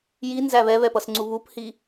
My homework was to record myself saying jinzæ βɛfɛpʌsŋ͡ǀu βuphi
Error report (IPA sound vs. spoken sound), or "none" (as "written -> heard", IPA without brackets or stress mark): f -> β